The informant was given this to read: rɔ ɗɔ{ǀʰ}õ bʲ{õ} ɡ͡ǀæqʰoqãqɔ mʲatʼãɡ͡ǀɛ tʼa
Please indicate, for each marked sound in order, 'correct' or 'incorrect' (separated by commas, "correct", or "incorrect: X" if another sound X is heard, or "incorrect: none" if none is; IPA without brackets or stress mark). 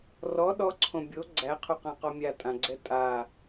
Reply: correct, incorrect: o